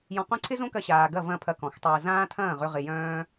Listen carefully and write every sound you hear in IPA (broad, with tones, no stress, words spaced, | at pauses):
jɔ̃˧qõ˦ ǀʰɪ˦zõ˦kɐ˧ ɕaː˨ɡɐ˦˨vɐ̃˦˨ pʰɐ˧kɔ̃˨xtˤɐː˧ zãː˦tʰɐ̃ː˦˨ʁʏ˧ ʁɪ˧jœ̃ː˦